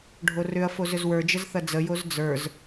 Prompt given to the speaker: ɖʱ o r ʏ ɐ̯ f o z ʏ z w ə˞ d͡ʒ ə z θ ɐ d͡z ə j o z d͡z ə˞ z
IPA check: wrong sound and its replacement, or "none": none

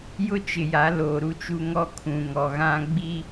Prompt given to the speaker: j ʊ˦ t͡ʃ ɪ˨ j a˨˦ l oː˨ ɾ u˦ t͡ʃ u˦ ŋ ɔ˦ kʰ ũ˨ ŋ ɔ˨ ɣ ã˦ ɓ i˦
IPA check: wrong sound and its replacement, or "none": ɓ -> ɡ͡b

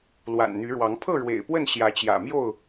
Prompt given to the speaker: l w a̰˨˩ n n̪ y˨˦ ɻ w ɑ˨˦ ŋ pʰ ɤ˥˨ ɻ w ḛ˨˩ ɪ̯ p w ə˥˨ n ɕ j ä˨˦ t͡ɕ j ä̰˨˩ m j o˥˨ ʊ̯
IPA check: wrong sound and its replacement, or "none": none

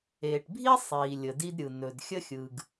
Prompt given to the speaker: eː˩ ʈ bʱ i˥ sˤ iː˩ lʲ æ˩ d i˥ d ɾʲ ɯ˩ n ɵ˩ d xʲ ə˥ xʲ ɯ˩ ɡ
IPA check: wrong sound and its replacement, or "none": æ˩ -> ə˩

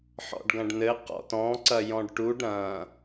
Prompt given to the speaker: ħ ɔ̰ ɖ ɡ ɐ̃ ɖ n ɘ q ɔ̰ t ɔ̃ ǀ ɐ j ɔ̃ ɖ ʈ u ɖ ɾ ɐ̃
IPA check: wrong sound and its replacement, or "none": none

